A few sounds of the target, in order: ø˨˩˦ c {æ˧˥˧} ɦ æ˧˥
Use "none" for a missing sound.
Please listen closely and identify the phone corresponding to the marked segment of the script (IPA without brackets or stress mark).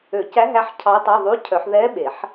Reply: æ˧˥